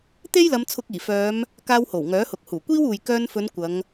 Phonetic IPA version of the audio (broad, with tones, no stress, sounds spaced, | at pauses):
t̪ e˥ j l ɐ˨˧ m t͡sʰ ʊ˧ k̚ iː˨˩ f œː˨˧ m | k aː˧ w h o˨˩ w ŋ œː˨˥ h ʊ˨ k̚ h uː˨˩ kʷ iː˥ w uː˨ j k œː˧ n f ɵ˨˧ n kʷ ɐ˨˧ ŋ